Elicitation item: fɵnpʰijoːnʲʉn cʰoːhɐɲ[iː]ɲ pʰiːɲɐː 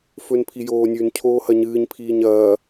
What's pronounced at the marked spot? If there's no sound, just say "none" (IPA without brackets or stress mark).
ɨː